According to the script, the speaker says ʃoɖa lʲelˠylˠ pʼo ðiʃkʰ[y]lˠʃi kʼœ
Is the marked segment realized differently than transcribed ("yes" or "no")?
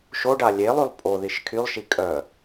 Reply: no